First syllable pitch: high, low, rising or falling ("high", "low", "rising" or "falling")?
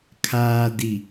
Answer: low